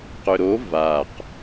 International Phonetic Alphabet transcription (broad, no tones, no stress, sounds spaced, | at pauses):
q ʏ ɾ o v a q